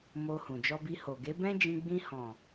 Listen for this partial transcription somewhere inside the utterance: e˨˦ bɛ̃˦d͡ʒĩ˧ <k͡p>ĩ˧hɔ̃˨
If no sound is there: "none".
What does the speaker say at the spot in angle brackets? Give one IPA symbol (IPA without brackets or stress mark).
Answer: ɡ͡b